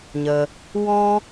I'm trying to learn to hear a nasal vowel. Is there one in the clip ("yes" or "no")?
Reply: yes